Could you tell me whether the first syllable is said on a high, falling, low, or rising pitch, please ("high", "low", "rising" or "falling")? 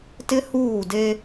high